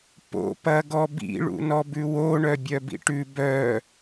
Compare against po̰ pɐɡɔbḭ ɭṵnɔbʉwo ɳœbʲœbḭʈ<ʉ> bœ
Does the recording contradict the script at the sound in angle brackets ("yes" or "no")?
no